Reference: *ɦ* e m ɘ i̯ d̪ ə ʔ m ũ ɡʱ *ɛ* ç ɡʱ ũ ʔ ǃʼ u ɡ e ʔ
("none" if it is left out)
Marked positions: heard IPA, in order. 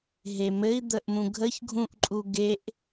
ɦ, ə

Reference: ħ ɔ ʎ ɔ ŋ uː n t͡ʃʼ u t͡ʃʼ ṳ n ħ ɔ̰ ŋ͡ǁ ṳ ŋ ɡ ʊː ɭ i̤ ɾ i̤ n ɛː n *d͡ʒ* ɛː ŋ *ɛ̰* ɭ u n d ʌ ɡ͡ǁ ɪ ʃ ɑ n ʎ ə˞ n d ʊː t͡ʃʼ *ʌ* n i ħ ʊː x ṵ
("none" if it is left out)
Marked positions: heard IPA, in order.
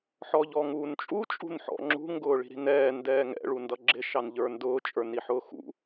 d, ɛ̰, ə˞

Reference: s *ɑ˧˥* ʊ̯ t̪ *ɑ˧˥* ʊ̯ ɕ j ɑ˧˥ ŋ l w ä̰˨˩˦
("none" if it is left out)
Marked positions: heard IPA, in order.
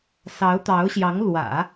ɑ˧˥, ɑ˧˥

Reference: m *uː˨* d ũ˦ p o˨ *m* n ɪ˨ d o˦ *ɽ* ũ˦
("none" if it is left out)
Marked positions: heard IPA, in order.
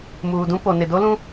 uː˨, none, l

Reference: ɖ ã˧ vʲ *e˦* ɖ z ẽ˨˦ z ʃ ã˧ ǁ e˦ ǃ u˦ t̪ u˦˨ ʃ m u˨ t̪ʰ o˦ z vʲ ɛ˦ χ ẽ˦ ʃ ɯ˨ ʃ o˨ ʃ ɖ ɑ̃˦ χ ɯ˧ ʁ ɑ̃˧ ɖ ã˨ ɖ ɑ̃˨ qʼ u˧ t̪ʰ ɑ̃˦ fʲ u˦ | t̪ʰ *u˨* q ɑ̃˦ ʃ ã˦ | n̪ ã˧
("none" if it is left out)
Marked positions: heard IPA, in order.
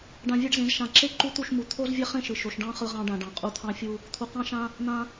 e˦, u˨

